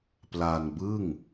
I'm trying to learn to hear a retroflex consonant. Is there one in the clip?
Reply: no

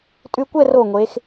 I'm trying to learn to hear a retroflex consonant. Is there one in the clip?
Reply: no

